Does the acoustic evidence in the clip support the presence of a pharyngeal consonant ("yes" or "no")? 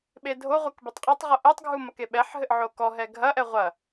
yes